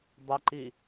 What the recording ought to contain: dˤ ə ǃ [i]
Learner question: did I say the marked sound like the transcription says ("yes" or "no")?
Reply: yes